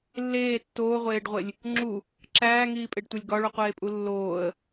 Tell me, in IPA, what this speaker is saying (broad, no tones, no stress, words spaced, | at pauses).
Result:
lːeː tːoːʁʷeːɖʁʷelʲ | ŋ͡ǁu | ǁæːŋiːpʼeɖtʷelʲ ɡɒɭuqʷeːpʼu lːoːə̯